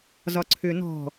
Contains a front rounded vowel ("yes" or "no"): yes